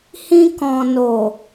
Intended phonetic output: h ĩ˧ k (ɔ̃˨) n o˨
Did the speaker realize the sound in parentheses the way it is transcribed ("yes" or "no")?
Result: yes